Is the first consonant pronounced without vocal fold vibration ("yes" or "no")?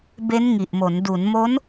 no